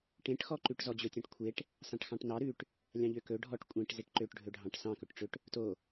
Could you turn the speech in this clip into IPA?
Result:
ʈ ẽ ʈ x ɔ ǃ ʉ ʈ z ɔ d͡ʑ ɵ tʲ ɑ̃ ʈ kʷʰ e ʈ | s ɑ̃ ʈ x ɑ̃ ʈ n ɑ ɾ ʉ ʈ | lʲ ɑ̃ ʎ ø k ɵ ɖʱ ɔ ʈ kʷʼ ẽ ʈ z e ʈ ǃ ø ʈ ɖʱ ɵ ɖʱ ɑ̃ ʈ s ɑ̃ k ɵ ʈ ʈ͡ʂ ø ʈ | t o

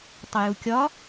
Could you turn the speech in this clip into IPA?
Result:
tˤ ʊ j u kʲ ɒ

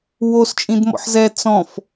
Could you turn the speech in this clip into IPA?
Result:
w o s t͡ʃʼ ĩ d m ɔ̰ ħ z ɛ t͡s ɔ̃ f

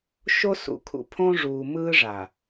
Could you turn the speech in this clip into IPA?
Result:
ʃ o˦ s ṵ˨ kʰ ṵ˨ pʰ õː˦ ʐ uː˨ m ɯː˦ ʐ a˨

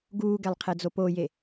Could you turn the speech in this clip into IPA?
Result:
ɡ uː ɡ ɛ lˠ qʰ ɛ d͡z o p o j e

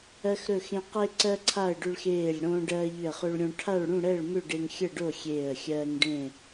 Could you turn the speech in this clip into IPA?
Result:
ɜ˧ x ɾ ɵ˧˩ x ẽ˧ q e˧ ǀ ɜ˧ ǀʰ a˧˩ ə̯ ɖ ʏ˧ ɭ x eː˧˩ lʲ ɽ õː˧ ɖ ɜː˧ ʎ ʏ˧˩ ə̯ χ ɵ˧ ɭ ɾʲ õ˧ ʈʰ a˥˨ ɭ ɽ ũ˥˨ ɽ ɛ˥˨ ɭ m ʏ˥˨ ɖ e˧ ŋ xʲ ə˥˨ ɖ o˥˨ xʲ eː˧˩ ə̯ xʲ ɜː˧ ŋ ɖ ẽ˥˨

